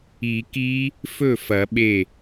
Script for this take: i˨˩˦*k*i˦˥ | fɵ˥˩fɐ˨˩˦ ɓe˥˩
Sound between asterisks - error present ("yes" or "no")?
no